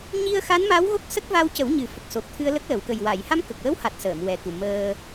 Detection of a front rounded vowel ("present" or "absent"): absent